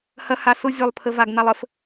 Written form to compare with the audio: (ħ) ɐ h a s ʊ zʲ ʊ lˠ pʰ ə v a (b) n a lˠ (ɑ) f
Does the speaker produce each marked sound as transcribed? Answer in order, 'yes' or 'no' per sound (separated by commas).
no, no, no